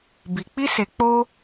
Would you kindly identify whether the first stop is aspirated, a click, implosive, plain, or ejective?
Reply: plain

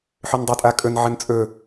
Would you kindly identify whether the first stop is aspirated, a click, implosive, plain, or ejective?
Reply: plain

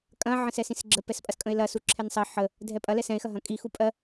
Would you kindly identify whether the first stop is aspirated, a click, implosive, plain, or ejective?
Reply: ejective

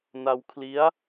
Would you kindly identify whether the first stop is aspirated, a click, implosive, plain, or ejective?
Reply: aspirated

